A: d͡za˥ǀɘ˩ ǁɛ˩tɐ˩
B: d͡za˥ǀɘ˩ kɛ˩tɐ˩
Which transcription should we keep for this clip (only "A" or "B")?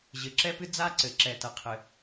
A